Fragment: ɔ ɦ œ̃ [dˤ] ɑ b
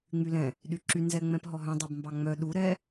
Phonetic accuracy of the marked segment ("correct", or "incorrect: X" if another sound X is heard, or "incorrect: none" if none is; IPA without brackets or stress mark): correct